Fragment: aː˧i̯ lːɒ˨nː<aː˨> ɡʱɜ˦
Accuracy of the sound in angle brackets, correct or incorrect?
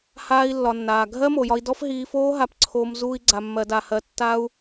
correct